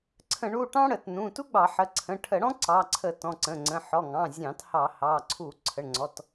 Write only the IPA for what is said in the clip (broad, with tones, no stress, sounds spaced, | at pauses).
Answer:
ǀʰ ə̃˧˩˧ ɳ u˩˧˩ ʈ ɑ̃˥ ɽ ə˧˩˧ t n ũ˩˧˩ t u˥ ɡ͡b ɑ˧˩˧ ħ ə˩˧˩ ǀʰ ə̃˩˧˩ ʈʰ ə˧˩˧ ɽ ɔ̃˥ ǀ ɑ˩˧˩ ǀʰ ə˧˩˧ t ɔ̃˩˧˩ ǀ ə̃˩˧˩ ŋ͡ǀ ə̃˩˧˩ ħ ɔ˩˧˩ ŋ ɑ̃˩˧˩ zʲ ɑ̃˧˩˧ t h ɑ˧˩˧ h ɑ˩˧˩ ǀʰ u˧˩˧ ǀʰ ə˩˧˩ ɳ ŋ͡ǀ ɔ˩˧˩ t